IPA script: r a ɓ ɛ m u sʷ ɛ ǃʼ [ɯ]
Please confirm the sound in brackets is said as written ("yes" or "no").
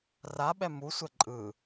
yes